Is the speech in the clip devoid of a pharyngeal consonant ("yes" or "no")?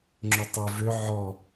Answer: no